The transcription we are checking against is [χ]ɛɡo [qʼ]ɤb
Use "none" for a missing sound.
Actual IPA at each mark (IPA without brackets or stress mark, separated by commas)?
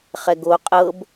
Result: χ, qʼ